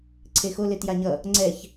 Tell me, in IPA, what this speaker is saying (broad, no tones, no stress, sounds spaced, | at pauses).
ǀʰ e x o l e t j a ɲ ʌ | ŋ͡ǀ ɛ ç